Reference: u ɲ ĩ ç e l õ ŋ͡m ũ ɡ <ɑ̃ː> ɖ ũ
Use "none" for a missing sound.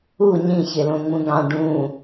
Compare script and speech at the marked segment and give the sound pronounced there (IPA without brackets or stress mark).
ɑ̃